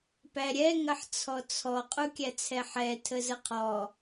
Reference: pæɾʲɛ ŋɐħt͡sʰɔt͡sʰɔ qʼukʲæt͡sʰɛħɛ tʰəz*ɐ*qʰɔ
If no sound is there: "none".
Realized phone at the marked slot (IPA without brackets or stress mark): ə